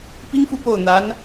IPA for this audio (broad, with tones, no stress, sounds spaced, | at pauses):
p i˥ ŋ f u˥˧ p o˥˩ ʊ̯ n̪ a˧˥ n